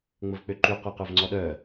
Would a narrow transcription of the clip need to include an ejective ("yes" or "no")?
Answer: no